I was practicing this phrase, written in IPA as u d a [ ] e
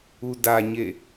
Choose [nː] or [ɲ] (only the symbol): ɲ